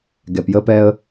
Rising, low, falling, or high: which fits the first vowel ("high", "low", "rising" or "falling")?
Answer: low